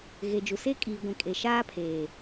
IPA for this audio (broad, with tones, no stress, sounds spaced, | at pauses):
ɣ e˨ d͡ʒ u˨ s e˦ kʼ iː˨ ɡʷ ĩ˨ kʼ e˨ ʃ aː˦ pʰ eː˨